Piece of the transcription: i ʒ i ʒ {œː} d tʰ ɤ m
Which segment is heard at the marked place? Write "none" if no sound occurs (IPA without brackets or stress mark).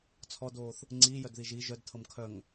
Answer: œ